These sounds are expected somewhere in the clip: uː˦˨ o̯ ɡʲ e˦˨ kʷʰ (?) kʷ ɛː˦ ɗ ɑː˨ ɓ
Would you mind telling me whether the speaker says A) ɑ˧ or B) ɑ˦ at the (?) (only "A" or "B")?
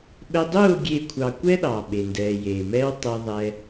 A